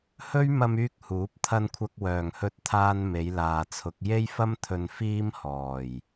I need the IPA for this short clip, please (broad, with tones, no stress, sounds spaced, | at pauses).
h ɵ˥ ɥ m ɐ˧ m yː˧ k̚ h uː˨˥ p̚ t̪ʰ ɐ˧ n kʷʰ ɐ˧ k̚ w œː˨˩ ŋ h ɵ˧ t̚ t̪ʰ aː˧ n m e˨˧ j l aː˨ t͡sʰ ʊ˨˥ k̚ j e˧ j f ɐ˧ m t̪ʰ ɵ˨ n f iː˧ m h ɔː˨˩ j